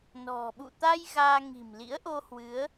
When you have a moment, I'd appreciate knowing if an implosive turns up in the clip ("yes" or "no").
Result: yes